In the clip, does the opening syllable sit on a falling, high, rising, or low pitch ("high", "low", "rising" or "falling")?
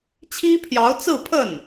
high